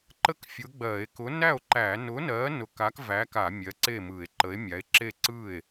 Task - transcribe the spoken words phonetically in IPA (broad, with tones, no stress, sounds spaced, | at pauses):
ǃ ə˥˩ k fʲ ʊ˨˥ ɡ͡b ɜ˧˩˧ e̯ k ʊ˨˥ n æ˥˩ o̯ ǃ æ˧˩˧ n ʊ˨˥ n ɜ˨˥ n ʊ˧˩˧ k a˨˥ k v æ˨˥ k a˧˩˧ mʲ ɜ˨˥ ǀ e˥˩ m ɯ˧˩˧ e̯ ǃ ə˨˥ e̯ mʲ a˨˥ e̯ ǁ e˥˩ ǀ ɯ˥˩ e̯